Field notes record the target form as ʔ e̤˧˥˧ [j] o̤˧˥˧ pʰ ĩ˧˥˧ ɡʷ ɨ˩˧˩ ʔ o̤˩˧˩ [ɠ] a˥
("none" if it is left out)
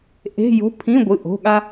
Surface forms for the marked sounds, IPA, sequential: j, ɠ

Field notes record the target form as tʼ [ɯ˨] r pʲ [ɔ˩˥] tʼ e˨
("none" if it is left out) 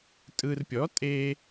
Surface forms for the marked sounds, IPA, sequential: ɯ˨, ɔ˩˥

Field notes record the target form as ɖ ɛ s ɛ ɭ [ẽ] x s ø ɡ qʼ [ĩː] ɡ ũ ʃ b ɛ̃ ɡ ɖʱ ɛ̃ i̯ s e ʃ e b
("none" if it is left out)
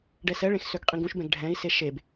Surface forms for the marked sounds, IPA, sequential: ẽ, ĩ

